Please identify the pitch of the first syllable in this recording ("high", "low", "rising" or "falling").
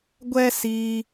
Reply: high